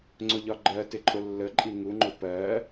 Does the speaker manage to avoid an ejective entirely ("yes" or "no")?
no